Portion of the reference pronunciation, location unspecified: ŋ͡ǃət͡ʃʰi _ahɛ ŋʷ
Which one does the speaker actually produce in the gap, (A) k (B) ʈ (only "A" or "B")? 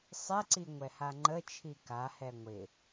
A